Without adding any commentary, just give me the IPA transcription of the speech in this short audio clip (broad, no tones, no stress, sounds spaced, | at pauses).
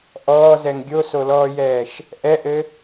ʔ ɔː z ɛ ŋ ɡʲ o s o l ɔː j ɛː ʃ | ʔ ɛ ʔ ɘ